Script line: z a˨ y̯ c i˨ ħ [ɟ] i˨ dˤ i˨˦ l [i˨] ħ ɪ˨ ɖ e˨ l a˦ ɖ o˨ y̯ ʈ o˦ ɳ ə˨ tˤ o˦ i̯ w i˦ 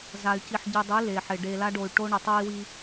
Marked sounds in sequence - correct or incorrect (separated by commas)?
correct, incorrect